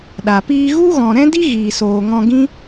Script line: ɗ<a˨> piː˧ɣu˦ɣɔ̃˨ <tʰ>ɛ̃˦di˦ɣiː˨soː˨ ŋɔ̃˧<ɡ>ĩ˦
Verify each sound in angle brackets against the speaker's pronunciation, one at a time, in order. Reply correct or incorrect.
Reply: correct, incorrect, correct

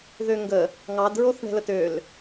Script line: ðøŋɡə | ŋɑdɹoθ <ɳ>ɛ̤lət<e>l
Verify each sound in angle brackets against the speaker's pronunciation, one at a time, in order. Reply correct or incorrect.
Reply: correct, incorrect

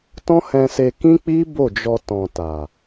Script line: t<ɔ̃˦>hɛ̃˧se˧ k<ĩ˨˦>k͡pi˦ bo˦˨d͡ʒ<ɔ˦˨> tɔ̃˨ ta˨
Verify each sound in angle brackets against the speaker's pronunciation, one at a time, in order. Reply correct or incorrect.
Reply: correct, incorrect, incorrect

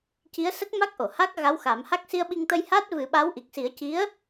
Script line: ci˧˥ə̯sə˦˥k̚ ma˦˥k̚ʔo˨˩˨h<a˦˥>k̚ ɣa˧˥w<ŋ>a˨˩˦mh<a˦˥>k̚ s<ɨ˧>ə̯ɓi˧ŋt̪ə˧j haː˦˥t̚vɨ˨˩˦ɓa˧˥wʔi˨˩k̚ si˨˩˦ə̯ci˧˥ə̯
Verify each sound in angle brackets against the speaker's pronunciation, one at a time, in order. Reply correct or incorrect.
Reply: correct, incorrect, correct, incorrect

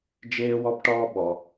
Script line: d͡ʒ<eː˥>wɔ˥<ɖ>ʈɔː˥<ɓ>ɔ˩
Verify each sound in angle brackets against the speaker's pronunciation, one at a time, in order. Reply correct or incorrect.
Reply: correct, incorrect, correct

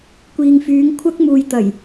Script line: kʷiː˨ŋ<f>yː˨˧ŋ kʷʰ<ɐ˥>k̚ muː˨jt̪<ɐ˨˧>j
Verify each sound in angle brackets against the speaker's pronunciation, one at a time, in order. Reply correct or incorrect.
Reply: correct, correct, incorrect

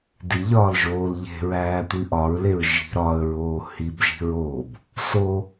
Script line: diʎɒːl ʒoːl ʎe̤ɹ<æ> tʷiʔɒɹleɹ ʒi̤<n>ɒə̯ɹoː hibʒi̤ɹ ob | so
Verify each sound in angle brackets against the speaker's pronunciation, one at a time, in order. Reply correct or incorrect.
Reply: incorrect, incorrect

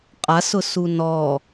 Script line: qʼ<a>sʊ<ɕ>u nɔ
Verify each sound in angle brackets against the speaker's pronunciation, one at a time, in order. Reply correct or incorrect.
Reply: correct, incorrect

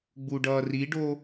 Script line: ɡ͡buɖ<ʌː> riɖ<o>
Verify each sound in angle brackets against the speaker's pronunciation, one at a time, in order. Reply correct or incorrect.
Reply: correct, correct

